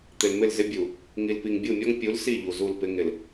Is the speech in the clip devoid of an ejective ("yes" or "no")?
yes